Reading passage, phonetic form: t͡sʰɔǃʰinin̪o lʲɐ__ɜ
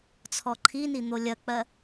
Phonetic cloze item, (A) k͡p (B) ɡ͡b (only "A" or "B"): A